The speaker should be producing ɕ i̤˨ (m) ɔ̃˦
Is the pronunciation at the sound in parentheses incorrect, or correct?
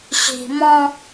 correct